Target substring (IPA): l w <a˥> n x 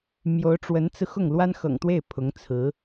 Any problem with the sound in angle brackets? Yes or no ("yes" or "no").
no